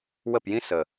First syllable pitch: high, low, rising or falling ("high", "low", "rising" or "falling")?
falling